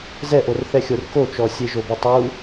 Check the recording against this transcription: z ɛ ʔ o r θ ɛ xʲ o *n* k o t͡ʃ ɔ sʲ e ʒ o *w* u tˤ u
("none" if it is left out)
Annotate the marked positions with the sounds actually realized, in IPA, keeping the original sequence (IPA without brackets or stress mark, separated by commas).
r, b